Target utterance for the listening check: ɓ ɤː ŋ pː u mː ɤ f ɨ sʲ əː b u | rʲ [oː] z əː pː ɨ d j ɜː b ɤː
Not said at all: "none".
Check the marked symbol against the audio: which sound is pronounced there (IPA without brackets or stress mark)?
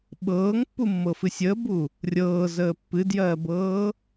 ɤː